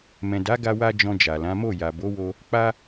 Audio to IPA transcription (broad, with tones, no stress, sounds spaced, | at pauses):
m ɛ̃˨ d a˨˦ ɡ a˦ w a˦ d͡ʒ ɔ̃˧ d͡ʒ a˨ l ã˨˦ m o˦˨ j a˨ b o˨˦ w o˧ | k͡p a˦